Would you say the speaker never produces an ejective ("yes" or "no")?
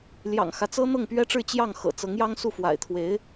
yes